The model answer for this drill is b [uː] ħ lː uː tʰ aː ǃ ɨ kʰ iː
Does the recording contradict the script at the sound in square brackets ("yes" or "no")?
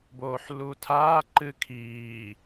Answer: yes